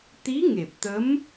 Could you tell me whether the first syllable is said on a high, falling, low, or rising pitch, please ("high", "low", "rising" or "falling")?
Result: rising